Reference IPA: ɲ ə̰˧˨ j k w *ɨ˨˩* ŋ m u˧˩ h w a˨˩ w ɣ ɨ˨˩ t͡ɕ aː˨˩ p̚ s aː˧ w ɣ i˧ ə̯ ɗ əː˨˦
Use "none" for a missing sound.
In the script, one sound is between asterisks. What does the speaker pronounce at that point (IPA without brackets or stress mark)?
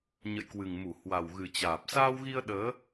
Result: ɨ˨˩